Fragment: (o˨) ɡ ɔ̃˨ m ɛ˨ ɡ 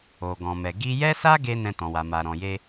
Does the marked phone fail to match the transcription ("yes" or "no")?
no